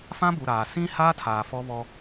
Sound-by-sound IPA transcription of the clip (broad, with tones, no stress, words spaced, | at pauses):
fã˦bu˨ɾaː˨ sĩ˦ haː˦tʰaː˨ fɔ˦βɔ˦